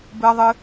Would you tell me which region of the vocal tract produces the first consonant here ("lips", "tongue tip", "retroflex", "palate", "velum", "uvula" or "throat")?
lips